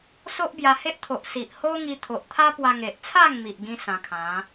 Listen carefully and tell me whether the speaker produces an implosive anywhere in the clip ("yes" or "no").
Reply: no